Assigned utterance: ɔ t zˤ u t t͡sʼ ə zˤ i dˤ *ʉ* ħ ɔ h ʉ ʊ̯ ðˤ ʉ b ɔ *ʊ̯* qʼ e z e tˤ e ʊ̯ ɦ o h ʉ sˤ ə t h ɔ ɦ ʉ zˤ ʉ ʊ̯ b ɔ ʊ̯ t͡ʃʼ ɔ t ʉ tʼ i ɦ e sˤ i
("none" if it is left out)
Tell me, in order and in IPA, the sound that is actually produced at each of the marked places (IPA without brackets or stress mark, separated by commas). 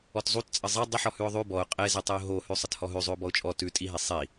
ə, ʊ̯